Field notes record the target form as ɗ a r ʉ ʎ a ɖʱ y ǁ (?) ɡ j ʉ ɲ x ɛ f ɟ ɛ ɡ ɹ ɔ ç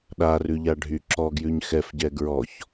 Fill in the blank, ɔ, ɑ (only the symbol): ɔ